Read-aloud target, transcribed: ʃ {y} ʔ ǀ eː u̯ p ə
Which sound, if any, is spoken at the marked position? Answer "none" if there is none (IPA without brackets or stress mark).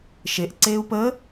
e